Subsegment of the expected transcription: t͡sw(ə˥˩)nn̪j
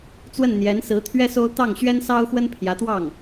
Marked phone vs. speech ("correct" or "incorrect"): correct